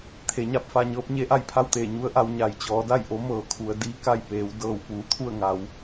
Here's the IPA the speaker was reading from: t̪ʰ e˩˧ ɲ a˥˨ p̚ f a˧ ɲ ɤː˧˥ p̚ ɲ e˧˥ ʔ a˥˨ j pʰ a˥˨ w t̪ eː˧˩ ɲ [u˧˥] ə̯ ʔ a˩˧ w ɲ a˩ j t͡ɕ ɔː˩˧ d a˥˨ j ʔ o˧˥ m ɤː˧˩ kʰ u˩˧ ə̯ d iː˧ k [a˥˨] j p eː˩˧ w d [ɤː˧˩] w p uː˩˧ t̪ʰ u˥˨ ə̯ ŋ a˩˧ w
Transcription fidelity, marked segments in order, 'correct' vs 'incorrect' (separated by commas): correct, correct, correct